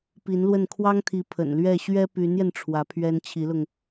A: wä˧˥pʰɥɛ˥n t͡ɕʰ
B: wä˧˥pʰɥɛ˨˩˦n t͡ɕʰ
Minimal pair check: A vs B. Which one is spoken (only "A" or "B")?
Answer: A